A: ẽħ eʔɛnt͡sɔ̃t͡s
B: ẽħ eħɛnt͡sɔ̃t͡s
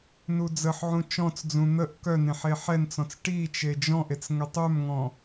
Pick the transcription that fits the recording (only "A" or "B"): B